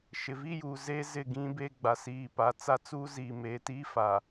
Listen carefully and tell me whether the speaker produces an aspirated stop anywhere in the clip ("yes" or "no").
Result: no